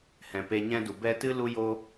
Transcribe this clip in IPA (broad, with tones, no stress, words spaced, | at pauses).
hɛ̃˨peː˧ɲɛ̃˦du˨ bɛ˦ tɨ˦lu˦ joː˦